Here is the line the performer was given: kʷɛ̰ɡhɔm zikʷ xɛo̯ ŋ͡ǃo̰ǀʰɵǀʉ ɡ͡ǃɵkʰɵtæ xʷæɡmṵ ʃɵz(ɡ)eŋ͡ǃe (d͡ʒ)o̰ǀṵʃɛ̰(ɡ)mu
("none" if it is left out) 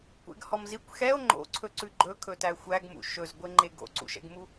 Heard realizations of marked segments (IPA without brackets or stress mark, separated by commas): ɡʷ, ɡ, ɡ